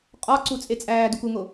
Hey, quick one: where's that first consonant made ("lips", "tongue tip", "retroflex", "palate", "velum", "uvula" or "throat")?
uvula